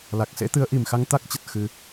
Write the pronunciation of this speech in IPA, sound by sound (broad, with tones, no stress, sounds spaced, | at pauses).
l a˨˩ k̚ s ḛ˧˥ t̪ ɨ˨˦ ə̯ ʔ i˨˩ m x a˧ ŋ t̪ a˦˥ k̚ t͡ɕ ə˨˩ t̚ x ɨ˧